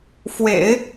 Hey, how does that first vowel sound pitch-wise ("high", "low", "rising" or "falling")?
low